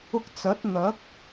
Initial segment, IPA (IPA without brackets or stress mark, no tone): ʊ